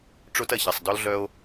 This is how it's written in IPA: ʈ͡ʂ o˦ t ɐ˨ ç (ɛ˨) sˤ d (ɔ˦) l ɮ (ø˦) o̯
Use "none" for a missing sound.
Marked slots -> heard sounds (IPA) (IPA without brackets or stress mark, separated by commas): ɛ˨, ɔ˦, œ˦